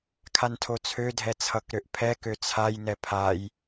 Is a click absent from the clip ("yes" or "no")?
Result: yes